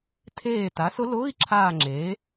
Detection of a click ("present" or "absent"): present